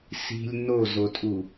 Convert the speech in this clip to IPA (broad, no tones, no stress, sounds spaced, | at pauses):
s i̤ lʲ n o z o tʼ u